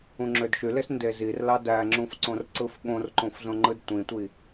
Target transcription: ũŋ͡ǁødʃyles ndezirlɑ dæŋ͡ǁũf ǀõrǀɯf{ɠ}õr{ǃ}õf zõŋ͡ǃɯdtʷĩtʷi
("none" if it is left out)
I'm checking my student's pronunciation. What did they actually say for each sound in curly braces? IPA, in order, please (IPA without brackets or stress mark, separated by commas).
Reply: ɠ, ǃ